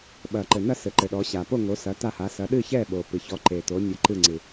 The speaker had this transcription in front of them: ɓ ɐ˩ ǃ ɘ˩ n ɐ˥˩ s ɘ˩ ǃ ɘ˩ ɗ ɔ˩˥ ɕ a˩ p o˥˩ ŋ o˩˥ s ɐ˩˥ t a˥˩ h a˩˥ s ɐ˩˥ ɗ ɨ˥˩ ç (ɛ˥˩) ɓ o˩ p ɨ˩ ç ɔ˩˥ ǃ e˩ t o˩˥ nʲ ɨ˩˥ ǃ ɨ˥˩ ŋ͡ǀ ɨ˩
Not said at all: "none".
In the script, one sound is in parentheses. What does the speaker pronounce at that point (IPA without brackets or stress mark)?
ɛ˥˩